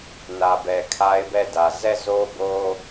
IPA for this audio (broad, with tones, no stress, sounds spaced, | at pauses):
n ä˨ b ɛ˨ kʰ a˦ ɪ̯ b ɛ˦˨ d ä˨ z ɛ˦˨ z o˦ b o˦